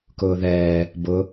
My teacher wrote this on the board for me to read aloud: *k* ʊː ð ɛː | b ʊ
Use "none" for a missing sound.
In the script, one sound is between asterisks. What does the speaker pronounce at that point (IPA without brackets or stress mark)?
k